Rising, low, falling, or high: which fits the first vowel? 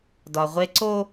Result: low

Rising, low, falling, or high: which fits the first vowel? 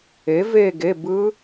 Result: rising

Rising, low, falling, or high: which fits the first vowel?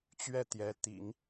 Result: falling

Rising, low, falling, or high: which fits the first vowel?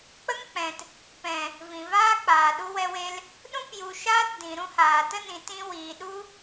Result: high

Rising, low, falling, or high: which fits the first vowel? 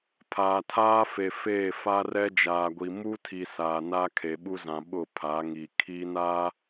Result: low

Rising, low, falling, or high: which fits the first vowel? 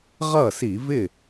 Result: falling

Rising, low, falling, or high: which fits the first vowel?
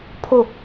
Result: falling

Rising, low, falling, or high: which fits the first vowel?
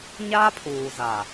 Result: high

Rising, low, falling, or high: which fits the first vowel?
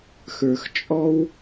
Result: low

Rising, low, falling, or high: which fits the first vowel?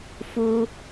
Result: high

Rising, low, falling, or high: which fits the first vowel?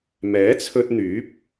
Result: rising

